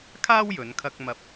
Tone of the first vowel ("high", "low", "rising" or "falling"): high